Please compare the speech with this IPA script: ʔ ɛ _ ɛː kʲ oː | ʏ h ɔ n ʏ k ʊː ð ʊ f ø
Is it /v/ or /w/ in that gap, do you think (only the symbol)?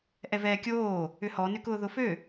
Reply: v